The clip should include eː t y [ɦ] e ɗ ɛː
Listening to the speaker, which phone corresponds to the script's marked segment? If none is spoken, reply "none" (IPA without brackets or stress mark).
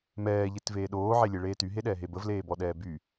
ɦ